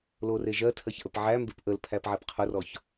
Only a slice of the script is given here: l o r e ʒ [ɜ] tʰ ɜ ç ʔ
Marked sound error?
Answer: no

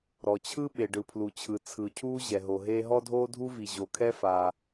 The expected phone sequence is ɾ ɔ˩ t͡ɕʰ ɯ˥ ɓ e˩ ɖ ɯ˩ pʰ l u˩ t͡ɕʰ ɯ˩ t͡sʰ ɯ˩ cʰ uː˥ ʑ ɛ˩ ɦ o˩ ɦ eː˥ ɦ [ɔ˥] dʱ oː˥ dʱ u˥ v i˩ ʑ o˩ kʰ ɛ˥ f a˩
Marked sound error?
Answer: no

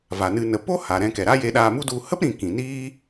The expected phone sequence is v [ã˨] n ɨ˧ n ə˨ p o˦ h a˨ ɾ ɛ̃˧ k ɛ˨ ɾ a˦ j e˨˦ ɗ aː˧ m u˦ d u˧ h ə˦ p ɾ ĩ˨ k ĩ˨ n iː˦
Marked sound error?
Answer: yes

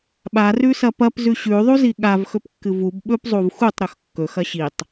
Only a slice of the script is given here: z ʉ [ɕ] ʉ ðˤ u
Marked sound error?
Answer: no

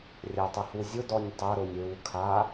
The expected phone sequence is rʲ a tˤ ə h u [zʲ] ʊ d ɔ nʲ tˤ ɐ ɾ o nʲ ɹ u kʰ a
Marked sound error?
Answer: no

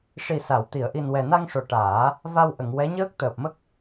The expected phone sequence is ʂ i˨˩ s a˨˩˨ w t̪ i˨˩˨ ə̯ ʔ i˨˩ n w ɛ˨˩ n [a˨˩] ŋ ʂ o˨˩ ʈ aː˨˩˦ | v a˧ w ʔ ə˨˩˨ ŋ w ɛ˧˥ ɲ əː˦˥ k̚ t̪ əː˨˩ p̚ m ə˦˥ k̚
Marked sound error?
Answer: yes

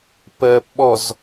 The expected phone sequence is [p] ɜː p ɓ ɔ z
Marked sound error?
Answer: no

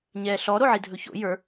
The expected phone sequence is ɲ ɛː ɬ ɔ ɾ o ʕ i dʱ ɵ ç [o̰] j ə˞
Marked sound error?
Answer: no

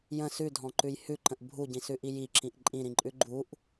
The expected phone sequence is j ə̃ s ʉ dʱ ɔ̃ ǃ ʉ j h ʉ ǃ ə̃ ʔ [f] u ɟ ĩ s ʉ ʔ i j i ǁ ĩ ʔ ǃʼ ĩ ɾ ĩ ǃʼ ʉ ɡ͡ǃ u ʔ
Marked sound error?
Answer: yes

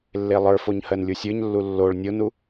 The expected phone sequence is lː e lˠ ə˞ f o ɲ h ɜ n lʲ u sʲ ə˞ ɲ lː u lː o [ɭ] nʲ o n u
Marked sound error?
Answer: no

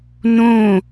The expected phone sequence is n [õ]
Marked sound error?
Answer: no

